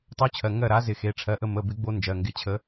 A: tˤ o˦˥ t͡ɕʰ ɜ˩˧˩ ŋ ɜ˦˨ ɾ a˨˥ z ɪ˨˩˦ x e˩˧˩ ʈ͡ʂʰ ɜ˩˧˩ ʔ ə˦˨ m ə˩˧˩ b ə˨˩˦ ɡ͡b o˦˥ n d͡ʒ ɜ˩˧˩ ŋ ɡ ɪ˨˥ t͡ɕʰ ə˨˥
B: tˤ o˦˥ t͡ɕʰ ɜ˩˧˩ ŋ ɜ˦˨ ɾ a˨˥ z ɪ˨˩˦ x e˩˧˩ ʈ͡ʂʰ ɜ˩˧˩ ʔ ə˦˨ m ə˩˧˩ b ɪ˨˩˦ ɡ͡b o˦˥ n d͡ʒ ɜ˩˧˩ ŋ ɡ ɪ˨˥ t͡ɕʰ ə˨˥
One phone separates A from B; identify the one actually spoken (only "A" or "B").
B